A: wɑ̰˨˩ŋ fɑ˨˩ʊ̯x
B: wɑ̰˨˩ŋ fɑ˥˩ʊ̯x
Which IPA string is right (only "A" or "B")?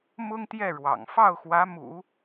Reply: B